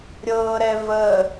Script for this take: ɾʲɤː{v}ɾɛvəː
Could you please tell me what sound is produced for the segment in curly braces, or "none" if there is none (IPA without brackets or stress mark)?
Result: none